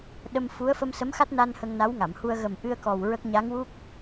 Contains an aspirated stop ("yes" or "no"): no